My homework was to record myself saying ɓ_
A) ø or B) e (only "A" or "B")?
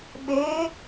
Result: B